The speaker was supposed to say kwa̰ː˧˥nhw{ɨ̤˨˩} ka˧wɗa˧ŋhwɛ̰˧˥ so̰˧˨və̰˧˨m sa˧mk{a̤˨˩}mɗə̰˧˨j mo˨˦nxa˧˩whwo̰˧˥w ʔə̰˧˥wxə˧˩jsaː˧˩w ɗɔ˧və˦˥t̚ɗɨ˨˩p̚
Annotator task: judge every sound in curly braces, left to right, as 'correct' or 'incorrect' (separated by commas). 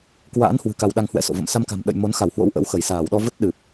correct, correct